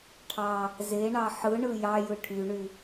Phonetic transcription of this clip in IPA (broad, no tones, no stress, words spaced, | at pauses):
ʈʰɑ | zeɳɑ ħɯɳɯ jɑjɯ ʈʰyɳy